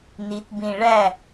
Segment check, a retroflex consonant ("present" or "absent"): present